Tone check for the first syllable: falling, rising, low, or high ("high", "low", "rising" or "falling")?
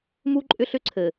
high